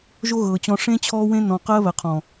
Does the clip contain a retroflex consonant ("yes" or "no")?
yes